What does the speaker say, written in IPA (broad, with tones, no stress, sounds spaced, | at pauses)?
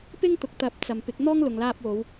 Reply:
p ɪ˥ ŋ t̪ ʊ˨ k̚ t̪ ɐ˨˥ p̚ t͡s ɐ˨ m p ɪ˨˥ k̚ n̪ ɔː˥ ŋ l ʊ˨ ŋ l aː˧ p̚ w o˨˧ w